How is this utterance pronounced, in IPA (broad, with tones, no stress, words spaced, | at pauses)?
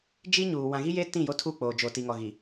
d͡ʒi˦ɲuː˨ wã˨ɣi˦je˦ tĩ˦˨jo˦tʰu˦˨ k͡poː˨d͡ʒo˨ ti˨ŋɔ˨ɣi˨